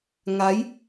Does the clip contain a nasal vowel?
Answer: no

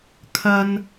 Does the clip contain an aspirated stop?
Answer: yes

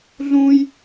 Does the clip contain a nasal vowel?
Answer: yes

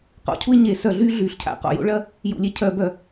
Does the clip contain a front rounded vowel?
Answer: yes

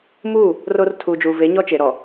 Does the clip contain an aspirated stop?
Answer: yes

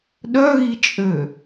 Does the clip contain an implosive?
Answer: yes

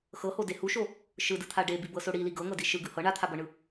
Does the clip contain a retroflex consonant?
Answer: yes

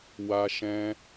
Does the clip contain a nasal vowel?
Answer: yes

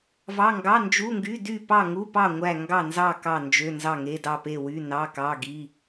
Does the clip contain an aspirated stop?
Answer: no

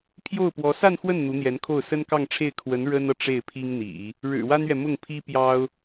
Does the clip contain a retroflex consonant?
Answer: yes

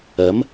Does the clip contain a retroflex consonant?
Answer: no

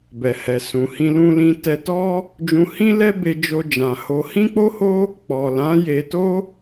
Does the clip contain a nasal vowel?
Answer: yes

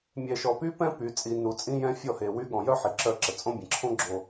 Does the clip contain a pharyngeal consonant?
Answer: yes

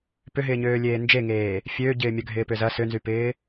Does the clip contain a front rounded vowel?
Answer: yes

